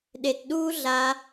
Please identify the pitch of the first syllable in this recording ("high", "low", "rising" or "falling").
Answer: low